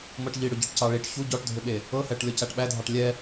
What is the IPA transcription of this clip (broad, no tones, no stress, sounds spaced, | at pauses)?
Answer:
m ɤ ʈ ʎ i ɽ ʏ ɟ ɤ ʈ c ɑ ɭ i ʈ ç u ɟ ɔ ʈ dʱ ʏ ɓ e | ɤ h ɛ ʈ lʲ ɔ c æ ʈ ɓ æ dʱ ɑ ʈ lʲ ɛ